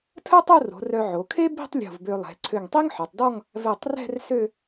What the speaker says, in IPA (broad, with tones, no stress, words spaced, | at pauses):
tʰə˥tˤo˥˧ro̤˩˧ rœ˧ʕo˩˧ kʰe˥bi̤˥˧tˤ lʲo̤˧˩vbø˧lˠɛ̤˩˧ ǀʰø˧˩ŋtˤi˥ŋħœ˩˧tˤdɔ˥˧ŋ | vɛ˧˩tˤrɛ̤˥˧r sø˥˧